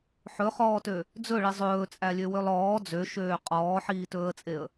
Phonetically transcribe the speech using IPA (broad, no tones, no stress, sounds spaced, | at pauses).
ħ ɵ χ ɔː t ø | d͡z ɵ ɭ i zˤ ɵː t͡sʼ æ lʲ ø w ø lˠ ɔː d͡z ø ʃ øː qʼ ɔː ħ iː t ɵː ə̯ t͡sʼ e ə̯